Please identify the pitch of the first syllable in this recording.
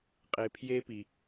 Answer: low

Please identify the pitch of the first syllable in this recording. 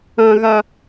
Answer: low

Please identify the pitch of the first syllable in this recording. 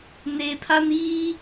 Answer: low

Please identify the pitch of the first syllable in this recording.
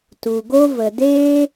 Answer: low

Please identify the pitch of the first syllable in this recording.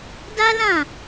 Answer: high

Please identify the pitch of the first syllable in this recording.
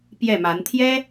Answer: falling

